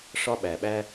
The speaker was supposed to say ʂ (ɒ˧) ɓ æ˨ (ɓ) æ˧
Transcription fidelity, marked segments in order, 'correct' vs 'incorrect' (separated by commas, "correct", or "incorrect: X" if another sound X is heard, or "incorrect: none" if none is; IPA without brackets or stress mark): correct, correct